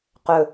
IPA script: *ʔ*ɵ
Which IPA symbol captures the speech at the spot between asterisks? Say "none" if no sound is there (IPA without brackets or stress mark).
q